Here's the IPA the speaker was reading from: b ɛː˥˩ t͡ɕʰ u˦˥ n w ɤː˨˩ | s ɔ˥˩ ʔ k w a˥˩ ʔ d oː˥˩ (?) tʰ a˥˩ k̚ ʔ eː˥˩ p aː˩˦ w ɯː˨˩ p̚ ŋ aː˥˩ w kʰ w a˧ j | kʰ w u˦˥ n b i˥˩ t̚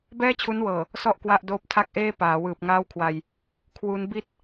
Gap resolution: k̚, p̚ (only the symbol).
p̚